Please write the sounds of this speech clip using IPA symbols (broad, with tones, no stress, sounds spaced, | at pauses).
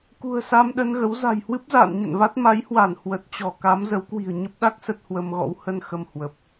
k ṳ˨˩ ə̯ s a˧ m ɗ ə˧ n ɣ ə˨˦ w z a̤˨˩ j h w ɨ˦˥ p̚ z a̰ː˧˨ n ɲ ə̰˧˨ n v a˦˥ t̚ m a˨˦ j h w a˧˩ n h w ə˨˩ t̚ t͡ɕ ɔ˧˩ k a˨˦ m z ə˨˦ w k w i̤˨˩ ə̯ ɲ ə˦˥ p̚ ɗ a˦˥ k̚ s ə˦˥ t̚ h w ə˧ m ɣ ɔ̰˧˥ w h ə˧ n x ə˧ m h w ə˨˩ p̚